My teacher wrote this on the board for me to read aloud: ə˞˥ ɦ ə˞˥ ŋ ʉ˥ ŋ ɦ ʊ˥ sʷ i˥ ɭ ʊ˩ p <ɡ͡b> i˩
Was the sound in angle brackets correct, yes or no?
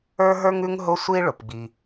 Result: yes